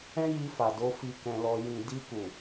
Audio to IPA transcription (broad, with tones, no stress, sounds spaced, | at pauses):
ɛ̃˦ j i˧ f a˨ d o˨˦ f i˧ k ɛ̃˧ l ɔ˧ j ĩ˨ d i˧ k u˨